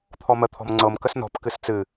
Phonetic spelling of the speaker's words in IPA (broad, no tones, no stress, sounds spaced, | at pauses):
t̪ʰ ɔ m ə t̪ʰ ɔ̤ m ŋ͡ǀ ɤ m k ə s n ɔ̤ p k ɨ s t͡s ɨ